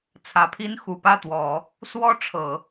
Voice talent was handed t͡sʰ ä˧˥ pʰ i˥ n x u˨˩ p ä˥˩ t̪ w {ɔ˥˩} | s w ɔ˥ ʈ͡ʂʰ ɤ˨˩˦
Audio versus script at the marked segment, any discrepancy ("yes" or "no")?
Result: yes